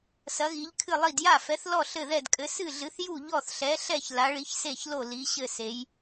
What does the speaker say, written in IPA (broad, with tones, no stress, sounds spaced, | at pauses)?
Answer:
s ɐ˨˥ ɣ i˨˥ ʎ kʰ ɨ˥˩ lˠ i˥˩ d j a˥˩ f ɛ˨˥ θ l ɔ˥˩ ɬ ɘ˥˩ ð ɛ˥˩ d kʼ ɘ˨˥ s ɨ˥˩ ɮ ɨ˨˥ θ j u˥˩ ʎ ɔ˥˩ θ ɬ ɛ˨˥ ɬ ɛ˥˩ ç l a˨˥ ɭ i˨˥ ç s e˥˩ ç l o˥˩ l i˨˥ ɕ ɘ˥˩ s e˨˥ j